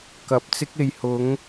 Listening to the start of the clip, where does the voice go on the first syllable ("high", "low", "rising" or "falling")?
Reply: low